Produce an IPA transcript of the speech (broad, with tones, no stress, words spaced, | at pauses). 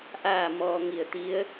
ʔaː˥˨mɔː˧ ŋi˧˩ə̯t̪i˧˥ə̯